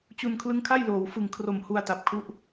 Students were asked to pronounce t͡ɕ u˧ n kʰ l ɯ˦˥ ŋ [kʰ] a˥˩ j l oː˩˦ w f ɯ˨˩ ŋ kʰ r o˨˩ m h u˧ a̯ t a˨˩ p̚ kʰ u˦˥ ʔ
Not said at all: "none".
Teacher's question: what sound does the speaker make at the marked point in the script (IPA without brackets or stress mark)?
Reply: kʰ